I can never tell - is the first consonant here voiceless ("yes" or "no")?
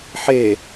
yes